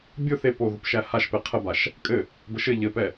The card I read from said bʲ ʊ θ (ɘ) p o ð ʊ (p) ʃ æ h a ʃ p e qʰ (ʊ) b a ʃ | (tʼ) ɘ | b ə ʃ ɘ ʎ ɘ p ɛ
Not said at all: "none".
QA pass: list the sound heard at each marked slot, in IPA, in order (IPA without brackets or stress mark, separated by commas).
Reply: e, p, ə, kʼ